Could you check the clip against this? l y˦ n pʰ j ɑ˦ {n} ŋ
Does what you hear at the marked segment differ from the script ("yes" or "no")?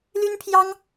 yes